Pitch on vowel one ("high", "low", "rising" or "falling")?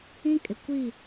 high